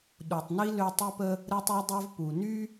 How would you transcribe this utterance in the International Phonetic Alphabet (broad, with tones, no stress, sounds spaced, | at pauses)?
ɗ u˨ tˤ n i˥ l ø˦ tˤ i˦ p ə˦ | ɾ ə˥ tˤ ø˥ dˤ ø˥ v p u˨ n y˥